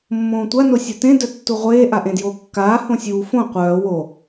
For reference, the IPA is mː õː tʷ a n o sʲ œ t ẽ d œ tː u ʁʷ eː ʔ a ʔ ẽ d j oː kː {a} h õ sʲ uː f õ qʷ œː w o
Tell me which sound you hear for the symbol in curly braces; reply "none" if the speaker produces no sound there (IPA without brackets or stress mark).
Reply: aː